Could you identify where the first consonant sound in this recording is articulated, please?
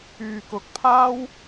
velar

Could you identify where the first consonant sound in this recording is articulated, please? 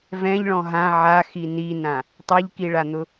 labial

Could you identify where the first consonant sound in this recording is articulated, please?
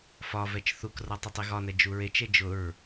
labial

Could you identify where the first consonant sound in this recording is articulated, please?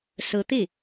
alveolar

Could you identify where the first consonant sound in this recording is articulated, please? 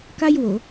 velar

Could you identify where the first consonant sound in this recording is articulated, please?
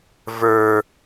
labial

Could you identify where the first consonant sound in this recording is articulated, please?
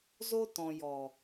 alveolar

